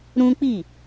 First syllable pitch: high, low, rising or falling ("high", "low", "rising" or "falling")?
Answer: high